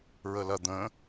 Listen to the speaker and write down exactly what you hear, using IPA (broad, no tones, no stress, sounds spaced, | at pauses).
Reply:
ɹ ə l ɐ d̪ ə̃